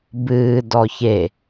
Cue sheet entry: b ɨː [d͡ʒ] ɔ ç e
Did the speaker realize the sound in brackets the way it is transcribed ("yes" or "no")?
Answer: no